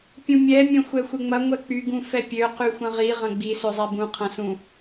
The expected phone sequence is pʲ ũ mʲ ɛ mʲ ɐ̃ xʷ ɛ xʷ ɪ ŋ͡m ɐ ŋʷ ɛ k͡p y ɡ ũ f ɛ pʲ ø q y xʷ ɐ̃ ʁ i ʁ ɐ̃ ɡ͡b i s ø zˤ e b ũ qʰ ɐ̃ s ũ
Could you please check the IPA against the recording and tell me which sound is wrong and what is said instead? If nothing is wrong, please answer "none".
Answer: none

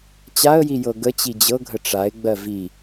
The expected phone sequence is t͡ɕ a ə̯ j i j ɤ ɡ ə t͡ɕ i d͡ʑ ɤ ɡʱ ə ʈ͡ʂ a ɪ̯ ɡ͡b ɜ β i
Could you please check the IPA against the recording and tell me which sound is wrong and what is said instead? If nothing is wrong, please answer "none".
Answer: β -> v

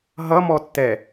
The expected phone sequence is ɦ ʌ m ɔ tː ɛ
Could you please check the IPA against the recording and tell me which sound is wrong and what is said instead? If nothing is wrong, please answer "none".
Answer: none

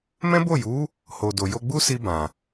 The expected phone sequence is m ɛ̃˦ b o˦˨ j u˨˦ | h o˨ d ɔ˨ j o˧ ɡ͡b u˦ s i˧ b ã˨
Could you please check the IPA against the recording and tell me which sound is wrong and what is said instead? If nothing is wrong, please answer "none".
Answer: ɔ˨ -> o˨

